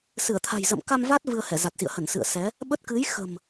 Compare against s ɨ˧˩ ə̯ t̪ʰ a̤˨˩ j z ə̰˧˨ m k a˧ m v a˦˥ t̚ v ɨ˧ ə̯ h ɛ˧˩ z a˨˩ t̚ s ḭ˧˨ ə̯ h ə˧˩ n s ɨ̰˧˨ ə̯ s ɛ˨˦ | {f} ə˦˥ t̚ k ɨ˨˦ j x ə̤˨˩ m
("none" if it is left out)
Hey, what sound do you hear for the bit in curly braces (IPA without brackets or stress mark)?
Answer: ɓ